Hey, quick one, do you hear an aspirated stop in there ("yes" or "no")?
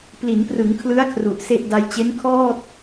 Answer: yes